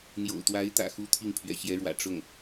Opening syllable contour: low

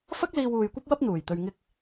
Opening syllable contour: high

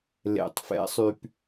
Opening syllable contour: low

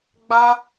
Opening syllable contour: high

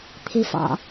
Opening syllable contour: low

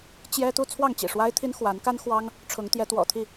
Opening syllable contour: high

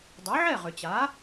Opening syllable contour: rising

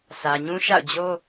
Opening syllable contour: low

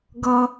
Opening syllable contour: high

